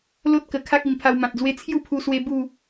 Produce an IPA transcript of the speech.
l o˦ t̚ k ə˨˩ kʰ a˦ k̚ i˨˩ m pʰ a˧ w m ã˨ t̚ d͡z w e˦ t͡sʰ j u˥˧ pʰ u˧ s w e˧ b u˥˧

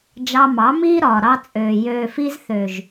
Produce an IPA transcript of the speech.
d͡ʒ ɑ˧ m ɑ˨˦ m iː˦ ɾ ɒː˨ ɾ ɑ˧ t͡sʼ øː˨ j øː˨ f i˧ z θ ø˨ ʒ

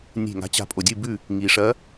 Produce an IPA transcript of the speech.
nʲ e̤˧˩ ŋ a̤˨˦ t͡ɕ a̤˨˦ pʼ o˩ dʲ ɨ˧˩ b ʉ˧˩ | ŋ i˩ ʂ ɐ˨˦

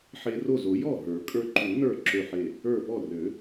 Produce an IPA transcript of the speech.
ħ e˧ r o˥˩ z o˨˩˦ j ɔ˥˩ ɦ ə˞˨˩˦ kʼ ə˞˧ ǃ u˨˩˦ n ə˞˧˩ ǁ ø˧˩ ħ e˧˩ | ə˞˧˩ p ɔ˥˩ r ø˨˩˦

